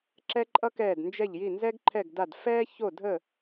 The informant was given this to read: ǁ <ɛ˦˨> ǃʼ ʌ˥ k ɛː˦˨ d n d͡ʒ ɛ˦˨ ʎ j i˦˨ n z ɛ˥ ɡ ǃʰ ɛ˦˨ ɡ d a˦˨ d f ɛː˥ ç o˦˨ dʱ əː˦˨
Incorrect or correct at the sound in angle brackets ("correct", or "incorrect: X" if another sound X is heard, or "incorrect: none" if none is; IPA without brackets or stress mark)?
incorrect: ɛ˥